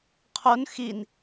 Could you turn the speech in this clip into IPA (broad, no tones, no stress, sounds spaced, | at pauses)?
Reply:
qʰ o n x i n